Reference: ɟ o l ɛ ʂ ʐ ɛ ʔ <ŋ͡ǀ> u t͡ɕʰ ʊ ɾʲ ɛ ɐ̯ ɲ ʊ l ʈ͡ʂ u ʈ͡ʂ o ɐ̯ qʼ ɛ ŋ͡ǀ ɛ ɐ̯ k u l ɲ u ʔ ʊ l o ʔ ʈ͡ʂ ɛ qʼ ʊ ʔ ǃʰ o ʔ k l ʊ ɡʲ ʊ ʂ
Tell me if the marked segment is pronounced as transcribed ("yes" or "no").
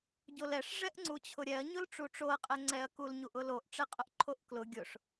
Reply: yes